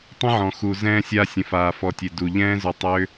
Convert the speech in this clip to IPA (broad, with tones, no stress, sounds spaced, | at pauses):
tˤ ə̃˦ ʕ ɔ̃˨ x u˨ z ɛ̃ː˧ sʲ a˧ sʲ ə̃˨ f aː˨ f ɔ˨ tʲ e˨ d u˨ ʎ ɛ̃ː˦ z ʏ˧ tˤ ʏː˦